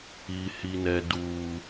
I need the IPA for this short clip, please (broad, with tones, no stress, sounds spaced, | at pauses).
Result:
i˨ h i˨ n ɛ˨ d uː˨